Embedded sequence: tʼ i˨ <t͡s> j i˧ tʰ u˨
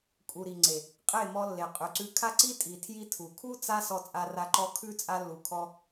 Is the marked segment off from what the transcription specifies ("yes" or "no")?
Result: yes